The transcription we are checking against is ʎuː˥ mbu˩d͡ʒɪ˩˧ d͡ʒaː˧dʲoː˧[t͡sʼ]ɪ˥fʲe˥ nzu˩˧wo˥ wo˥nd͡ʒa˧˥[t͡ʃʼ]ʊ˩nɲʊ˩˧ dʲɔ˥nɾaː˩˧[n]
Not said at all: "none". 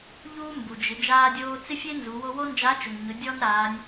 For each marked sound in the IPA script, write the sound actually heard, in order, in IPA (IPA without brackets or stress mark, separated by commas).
t͡s, t͡ʃ, nʲ